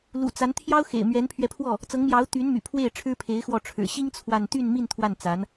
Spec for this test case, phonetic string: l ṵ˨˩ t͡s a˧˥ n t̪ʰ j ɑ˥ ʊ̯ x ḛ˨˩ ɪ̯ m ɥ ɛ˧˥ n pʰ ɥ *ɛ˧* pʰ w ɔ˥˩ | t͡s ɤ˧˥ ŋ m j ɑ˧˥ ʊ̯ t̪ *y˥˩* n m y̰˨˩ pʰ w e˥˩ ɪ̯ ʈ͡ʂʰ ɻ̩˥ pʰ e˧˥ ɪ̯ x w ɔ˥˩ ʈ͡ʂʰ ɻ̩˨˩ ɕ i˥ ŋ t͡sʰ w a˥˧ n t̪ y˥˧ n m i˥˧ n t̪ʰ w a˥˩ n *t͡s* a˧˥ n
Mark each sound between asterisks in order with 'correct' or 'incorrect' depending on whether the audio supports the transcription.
correct, incorrect: y˧˥, correct

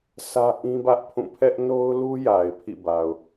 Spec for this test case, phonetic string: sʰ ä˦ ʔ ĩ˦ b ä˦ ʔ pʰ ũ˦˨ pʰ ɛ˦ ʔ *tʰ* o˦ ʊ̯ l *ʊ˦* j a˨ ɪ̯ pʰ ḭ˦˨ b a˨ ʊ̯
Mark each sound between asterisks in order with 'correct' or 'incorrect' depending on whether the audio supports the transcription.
incorrect: n, incorrect: u˦

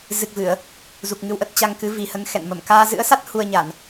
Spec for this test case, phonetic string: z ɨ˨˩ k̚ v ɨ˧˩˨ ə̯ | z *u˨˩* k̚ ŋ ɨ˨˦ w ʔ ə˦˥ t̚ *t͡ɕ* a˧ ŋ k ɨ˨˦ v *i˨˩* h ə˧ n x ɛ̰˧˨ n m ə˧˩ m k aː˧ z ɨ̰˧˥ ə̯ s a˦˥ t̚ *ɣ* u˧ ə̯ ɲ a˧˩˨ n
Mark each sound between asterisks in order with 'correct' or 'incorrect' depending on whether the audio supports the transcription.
correct, correct, correct, incorrect: h

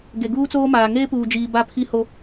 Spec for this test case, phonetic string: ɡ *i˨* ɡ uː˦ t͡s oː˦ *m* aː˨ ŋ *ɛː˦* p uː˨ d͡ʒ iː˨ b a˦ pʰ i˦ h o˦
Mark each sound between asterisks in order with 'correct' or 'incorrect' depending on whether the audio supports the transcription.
incorrect: e˨, correct, incorrect: eː˦

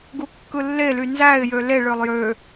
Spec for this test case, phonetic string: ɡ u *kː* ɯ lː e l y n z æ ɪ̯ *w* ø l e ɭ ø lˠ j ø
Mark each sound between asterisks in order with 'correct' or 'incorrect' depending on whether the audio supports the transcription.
correct, incorrect: j

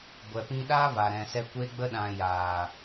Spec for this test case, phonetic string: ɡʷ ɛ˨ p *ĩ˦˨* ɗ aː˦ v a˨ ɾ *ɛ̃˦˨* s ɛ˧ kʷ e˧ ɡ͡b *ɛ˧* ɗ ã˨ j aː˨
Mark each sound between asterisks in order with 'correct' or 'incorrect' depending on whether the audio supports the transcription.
incorrect: ĩ˧, incorrect: ɛ̃˨, incorrect: ə˧

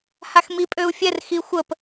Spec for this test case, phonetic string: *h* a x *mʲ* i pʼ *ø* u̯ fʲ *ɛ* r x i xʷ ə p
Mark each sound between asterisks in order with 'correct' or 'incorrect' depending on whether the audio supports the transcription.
correct, incorrect: m, correct, correct

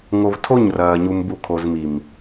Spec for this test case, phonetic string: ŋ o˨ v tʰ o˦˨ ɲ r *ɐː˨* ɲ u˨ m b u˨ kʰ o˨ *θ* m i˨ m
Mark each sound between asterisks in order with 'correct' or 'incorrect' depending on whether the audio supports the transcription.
correct, incorrect: z

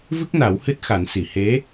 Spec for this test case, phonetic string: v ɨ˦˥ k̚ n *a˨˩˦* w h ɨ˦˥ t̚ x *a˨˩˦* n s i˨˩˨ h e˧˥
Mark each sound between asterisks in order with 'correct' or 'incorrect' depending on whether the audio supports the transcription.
correct, correct

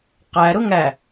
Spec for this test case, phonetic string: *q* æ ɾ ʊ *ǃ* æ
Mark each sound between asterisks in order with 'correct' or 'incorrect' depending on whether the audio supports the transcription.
correct, incorrect: ŋ

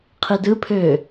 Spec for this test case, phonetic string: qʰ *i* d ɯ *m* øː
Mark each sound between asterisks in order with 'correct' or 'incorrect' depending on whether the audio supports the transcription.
correct, incorrect: pʰ

